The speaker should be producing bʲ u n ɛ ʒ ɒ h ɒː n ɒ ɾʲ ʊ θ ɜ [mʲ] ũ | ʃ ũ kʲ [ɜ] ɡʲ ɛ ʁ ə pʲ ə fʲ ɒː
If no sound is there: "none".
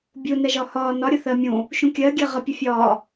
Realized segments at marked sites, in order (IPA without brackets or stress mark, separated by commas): mʲ, ɜ